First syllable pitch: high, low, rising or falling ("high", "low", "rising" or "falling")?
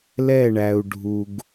falling